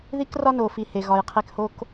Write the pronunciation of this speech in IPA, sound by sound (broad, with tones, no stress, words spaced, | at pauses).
ði˦krɒ˦no˨fi˨ he˨ɣɒ˨jqʰe˦k ho˦k